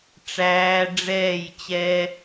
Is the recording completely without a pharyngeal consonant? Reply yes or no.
yes